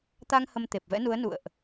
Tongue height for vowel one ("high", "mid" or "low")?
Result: low